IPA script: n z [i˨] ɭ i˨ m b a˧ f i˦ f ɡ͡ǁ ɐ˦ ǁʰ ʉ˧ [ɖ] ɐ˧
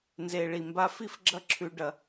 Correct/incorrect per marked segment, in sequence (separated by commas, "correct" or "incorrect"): incorrect, correct